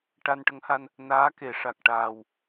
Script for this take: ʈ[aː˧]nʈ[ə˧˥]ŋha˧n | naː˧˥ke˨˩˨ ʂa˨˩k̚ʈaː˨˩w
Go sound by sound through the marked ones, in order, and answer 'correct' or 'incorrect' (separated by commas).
incorrect, correct